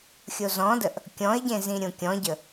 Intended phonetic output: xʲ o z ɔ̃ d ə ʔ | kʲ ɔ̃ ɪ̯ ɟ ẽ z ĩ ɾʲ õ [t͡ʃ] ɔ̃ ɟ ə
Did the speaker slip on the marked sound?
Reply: yes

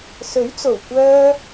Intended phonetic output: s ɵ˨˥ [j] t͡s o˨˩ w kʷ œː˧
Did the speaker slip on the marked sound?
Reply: yes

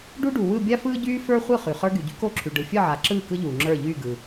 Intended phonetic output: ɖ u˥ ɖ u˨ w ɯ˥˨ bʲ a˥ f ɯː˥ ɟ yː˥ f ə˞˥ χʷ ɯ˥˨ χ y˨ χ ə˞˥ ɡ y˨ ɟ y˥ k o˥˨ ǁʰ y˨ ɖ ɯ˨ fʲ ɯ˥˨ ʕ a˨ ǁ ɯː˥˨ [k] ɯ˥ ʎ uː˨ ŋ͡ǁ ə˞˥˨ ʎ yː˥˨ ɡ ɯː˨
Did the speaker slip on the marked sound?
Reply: no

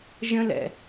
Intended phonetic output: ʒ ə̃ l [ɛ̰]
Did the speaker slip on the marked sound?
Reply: no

